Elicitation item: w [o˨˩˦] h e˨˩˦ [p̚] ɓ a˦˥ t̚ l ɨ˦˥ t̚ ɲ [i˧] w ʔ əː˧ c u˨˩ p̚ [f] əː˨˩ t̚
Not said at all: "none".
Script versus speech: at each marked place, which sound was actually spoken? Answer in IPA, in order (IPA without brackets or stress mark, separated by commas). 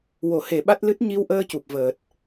o˨˩˦, none, i˧, v